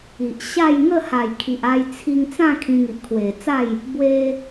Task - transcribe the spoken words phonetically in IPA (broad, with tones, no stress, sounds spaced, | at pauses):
i˨ ʔ ɕ a˥˧ j ŋ ə˥˧ h a˨˩ j kʰ i˨ ʔ a˧ j t͡sʰ i˧ ŋ t͡s ã˥˧ kʰ ĩ˧ ŋ i˨ ʔ kʰ w e˨˩ t͡s a˥˧ j | b w e˧